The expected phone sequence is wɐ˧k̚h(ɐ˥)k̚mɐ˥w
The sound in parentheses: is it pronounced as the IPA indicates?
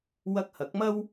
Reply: no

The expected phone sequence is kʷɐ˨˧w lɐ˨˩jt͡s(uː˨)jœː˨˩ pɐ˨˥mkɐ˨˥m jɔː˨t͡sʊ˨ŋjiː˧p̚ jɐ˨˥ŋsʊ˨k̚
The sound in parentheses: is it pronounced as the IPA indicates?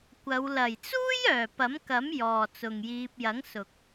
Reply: no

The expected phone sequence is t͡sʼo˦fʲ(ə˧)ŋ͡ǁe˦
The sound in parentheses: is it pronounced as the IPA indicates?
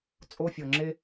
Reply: no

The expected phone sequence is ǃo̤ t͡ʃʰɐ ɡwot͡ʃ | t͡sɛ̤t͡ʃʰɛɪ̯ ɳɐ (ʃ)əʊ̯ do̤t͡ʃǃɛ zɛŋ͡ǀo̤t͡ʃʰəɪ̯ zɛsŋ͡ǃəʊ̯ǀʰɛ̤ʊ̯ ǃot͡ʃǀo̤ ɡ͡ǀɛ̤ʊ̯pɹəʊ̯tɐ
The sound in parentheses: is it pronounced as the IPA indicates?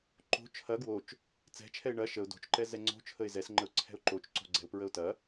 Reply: yes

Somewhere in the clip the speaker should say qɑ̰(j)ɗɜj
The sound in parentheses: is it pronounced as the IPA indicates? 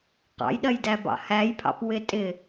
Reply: yes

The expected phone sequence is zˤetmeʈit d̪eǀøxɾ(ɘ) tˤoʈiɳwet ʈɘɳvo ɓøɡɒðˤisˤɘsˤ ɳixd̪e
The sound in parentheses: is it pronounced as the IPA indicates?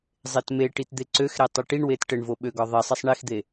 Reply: no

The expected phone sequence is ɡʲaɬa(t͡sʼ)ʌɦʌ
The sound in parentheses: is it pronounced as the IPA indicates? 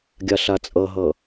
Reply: yes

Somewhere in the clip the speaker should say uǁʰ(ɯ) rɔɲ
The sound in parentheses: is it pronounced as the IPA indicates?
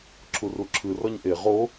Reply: yes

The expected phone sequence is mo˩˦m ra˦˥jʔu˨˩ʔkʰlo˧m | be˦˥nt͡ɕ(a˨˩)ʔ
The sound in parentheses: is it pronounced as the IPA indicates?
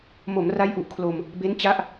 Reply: no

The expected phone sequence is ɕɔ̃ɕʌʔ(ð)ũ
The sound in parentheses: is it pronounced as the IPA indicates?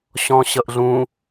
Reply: no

